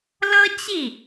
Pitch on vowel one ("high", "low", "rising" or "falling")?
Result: high